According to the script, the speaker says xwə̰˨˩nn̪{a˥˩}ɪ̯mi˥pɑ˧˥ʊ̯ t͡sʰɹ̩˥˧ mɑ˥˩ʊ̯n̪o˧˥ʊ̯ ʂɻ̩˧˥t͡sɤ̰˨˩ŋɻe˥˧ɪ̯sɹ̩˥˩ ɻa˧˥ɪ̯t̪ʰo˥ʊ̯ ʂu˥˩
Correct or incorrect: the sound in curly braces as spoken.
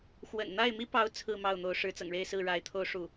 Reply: correct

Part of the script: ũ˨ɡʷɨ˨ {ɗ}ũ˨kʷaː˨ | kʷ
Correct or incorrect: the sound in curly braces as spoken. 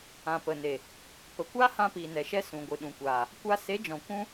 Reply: correct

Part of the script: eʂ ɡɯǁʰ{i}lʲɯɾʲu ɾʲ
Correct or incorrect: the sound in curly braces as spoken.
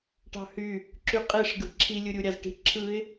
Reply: correct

